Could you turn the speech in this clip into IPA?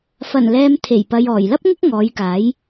f ɐ˨˩ n l ɛː˨ m t̪ʰ e˨˩ j p ɐ˨ j ɔː˨˩ j l ɐ˥ p̚ ŋ ʊ˥ k̚ ŋ ɔː˨˧ j k aː˨˥ j

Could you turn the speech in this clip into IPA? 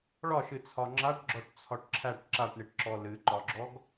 ɭ ɒ ʃ ɨ t͡sʰ ɒ ŋ͡ǁ a ʈ ɡ͡ǁ ɔ ʈ t͡sʰ ɒ ʈ ǁʰ æ ʈ ǁ a ʈ ɳ i ʈ ǁ ɔ l ɨ ǃ ɒ ɡ͡ǁ ɔ ɡ

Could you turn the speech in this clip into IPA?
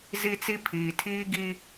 z i˦ t͡s i˦ pʰ iː˨ tʰ iː˦ ɡ i˦

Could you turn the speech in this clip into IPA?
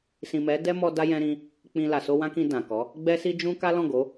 s ĩ˨ m ɛ˨˦ d ɛ˦ m ɔ˧ d a˦ j ɛ̃˧ ɾ ĩ˧ | k͡p ĩ˨ l a˨ s o˧ w ã˦ k ĩ˧ d ã˨ k ɔ˨˦ | ɡ͡b ɛ˦ s i˦ d͡ʒ ũ˧ k a˦ l ɔ̃˦˨ ɡ o˨˦

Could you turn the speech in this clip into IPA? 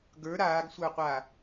ɡ ə˞ ɾ aː ɡ sʷ ə˞ qʷ a

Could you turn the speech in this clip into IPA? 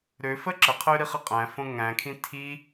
ɾ ø f ə ǁ ə qʰ ø ɾ i χ ə qʼ æ̃ f õ ŋ æ̃ kʰ ĩ tʰ i

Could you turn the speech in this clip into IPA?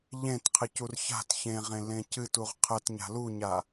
ʎ ẽ t qʰ ɨ c u r ç a̤ t ç ẽ ʁ ẽ l ẽ c ɨ t u ʁ qʰ ə t ɲ a̤ l u ɲ a

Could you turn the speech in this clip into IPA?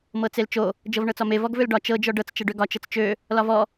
m ɤ t͡s e l t͡ʃ o | d͡ʒ ɤ v ɳ ɤ t͡s ɒ m e v ɔ ɡ v ø l ɖ ɒ t͡ʃ ɤ d͡ʒ ɔ ɖ ɤ t͡s t͡ʃ ɤ ɖ ø ɡ ɒ t͡ʃ ɤ t͡s t͡ʃ ø | l ɒ v ɔ

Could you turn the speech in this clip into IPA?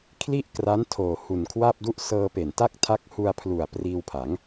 kʰ l i˥˩ ʔ k r a˦˥ n tʰ oː˨˩ h u˨˩ n kʰ w a˥˩ p̚ d u˥˩ ʔ s ɤː˧ p e˨˩ n t a˥˩ k̚ tʰ a˦˥ k̚ h u˧ a̯ pʰ l u˨˩ a̯ p r iː˧ w pʰ a˩˦ ŋ

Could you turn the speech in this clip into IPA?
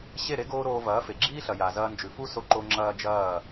ɕ e˦˨ ɾ e˦ ɡ oː˧ ɾ oː˧ v ɐː˨˦ f e˨ ɡ͡ǁ iː˦ ɬ ɐ˨ j a˨ z ɐː˧ n d͡ʒ ʉ˨ f u˦ s o˧ ǃ o˧ ŋ͡ǁ ɐː˦ d͡ʒ ɐː˦˨

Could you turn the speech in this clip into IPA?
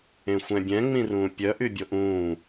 ẽ xʷ ɛ̃ bʲ ɛ̃ ŋ͡m ĩ r ũː pʲ œ ʔ y bʲ o ʔ ũː

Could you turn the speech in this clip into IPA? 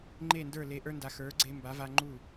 ŋ͡ǃ e˥˩ n d ə˞˥˩ l e˧ ʔ ə˞˥ n d a˧ x ə˞˩˥ ɡ͡ǀ e˧ m b a˩˥ v a˧ ŋ͡ǃ u˥˩

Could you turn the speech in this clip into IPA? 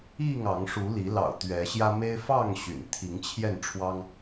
i˥˨ ŋ ɑ˨˦ ŋ ʂ u˨˦ l i˨˦ l ɑ̰˨˩ ʊ̯ t̪ ɥ ɛ˨˦ ɕ j ä˦ m e˦ ɪ̯ f ɑ˥˨ ŋ ɕ y̰˨˩ n t̪ʰ i˨˦ ŋ t͡ɕʰ j ɛ˥˨ n ʈ͡ʂʰ w ɑ˦ ŋ

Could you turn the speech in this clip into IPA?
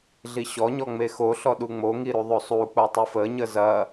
ɮ i ɕ ɔ ɲ ɔ ŋ͡m e x o ɬ ɔ ɗ u ŋ͡m o ŋ i ɾ u ðˤ o sˤ u k͡p o tˤ u f ə ɲ ə z ɐ

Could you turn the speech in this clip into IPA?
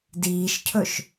d iː ʃ cʰ ɵ ʃ

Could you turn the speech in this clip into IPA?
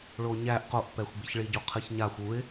ɭ o ɲ æ ʔ q o ʔ p ɛ xʷ ɡ͡b ɨ ç ɭ i ɟ o qʰ ɨ ç ɲ a xʷ u ɪ̯

